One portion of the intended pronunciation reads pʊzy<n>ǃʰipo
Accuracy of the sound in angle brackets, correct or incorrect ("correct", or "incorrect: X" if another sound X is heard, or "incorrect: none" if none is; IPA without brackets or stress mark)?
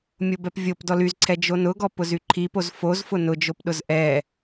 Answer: incorrect: none